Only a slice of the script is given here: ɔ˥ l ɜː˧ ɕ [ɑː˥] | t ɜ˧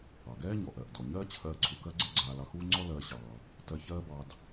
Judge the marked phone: incorrect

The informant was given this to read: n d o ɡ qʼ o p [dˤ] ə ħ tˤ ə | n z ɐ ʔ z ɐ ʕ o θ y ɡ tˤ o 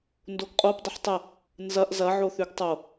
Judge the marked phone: correct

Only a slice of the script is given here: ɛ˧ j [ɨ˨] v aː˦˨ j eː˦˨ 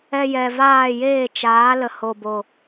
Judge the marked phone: incorrect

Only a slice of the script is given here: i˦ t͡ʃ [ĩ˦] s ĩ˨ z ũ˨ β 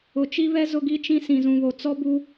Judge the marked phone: correct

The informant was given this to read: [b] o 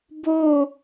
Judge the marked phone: correct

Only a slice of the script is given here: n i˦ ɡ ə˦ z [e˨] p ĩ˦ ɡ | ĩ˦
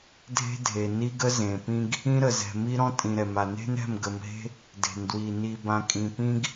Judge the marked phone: incorrect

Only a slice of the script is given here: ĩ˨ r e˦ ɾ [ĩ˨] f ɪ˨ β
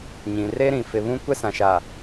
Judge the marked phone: correct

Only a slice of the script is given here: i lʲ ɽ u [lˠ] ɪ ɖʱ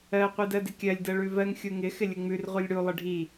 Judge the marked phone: correct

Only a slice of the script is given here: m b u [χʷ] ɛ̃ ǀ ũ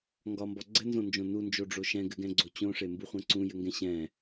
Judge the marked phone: correct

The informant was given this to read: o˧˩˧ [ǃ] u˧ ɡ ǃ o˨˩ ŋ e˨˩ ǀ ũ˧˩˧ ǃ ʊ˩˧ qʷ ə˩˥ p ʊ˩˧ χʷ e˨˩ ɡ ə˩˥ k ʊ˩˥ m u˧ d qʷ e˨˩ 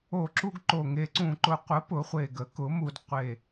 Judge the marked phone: incorrect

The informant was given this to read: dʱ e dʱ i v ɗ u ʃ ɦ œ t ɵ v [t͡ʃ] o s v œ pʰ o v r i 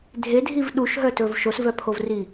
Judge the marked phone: incorrect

